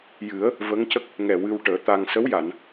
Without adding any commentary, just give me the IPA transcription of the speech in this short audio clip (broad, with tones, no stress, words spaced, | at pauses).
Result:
jɨ˨˩˦ə̯ | və˧˥ŋcə˦˥k̚ | ŋɛ˨˩ wɨ˧wʈəː˨˩˦t̪a˧ŋ sə˧˥w ja˨˩˨n